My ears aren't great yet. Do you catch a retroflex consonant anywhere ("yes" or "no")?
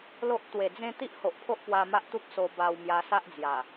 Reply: no